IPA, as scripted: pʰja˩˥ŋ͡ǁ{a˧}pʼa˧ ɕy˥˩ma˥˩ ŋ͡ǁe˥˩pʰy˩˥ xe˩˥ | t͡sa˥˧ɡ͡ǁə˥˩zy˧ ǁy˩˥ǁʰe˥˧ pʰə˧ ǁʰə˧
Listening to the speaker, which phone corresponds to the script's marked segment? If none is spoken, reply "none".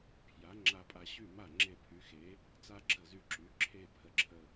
a˧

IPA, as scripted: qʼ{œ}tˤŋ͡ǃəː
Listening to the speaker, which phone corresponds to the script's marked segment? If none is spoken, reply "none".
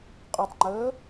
œ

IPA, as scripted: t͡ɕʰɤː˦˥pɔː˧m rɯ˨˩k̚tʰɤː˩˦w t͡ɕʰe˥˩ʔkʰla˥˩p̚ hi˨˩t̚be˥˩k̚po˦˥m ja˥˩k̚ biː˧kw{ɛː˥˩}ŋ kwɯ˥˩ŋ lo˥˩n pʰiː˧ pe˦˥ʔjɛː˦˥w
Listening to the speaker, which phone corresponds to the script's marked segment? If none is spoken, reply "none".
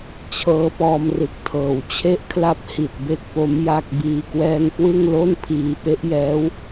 ɛː˥˩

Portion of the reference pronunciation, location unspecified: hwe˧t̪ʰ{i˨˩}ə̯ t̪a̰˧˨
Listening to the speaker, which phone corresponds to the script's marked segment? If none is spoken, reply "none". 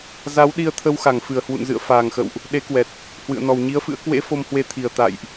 i˨˩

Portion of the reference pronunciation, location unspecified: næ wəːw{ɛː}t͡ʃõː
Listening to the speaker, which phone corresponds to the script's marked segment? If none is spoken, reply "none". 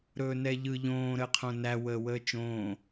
əː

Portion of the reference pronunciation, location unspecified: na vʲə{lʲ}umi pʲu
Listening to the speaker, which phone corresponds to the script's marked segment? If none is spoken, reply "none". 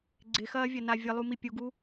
lˠ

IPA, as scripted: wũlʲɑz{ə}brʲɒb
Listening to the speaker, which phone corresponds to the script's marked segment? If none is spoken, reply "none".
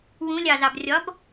ɑ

